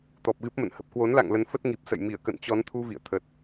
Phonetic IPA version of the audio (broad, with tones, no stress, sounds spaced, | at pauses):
t̪ ɔ˨˩ p̚ ɣ ɨ˦˥ p̚ m ə̰˧˨ n h ə˨˩ p̚ k w o˨˦ n l a̰˧˨ ŋ l ə˨˦ n f ə˦˥ t̚ ŋ i˨˩ p̚ s ə̰˧˨ j m i˧˩ ə̯ k ə̰˧˨ n t͡ɕ ɔ˨˦ n t̪ʰ u˧ v ḭ˧˨ ə̯ t̪ʰ ə˨˩ t̚